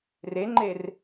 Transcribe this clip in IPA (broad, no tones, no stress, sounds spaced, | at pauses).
r e ŋ͡ǃ e r